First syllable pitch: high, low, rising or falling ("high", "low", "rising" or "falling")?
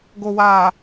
low